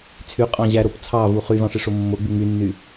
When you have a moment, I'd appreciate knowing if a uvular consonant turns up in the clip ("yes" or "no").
yes